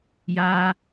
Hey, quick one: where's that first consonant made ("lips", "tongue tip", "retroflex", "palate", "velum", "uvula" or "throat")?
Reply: palate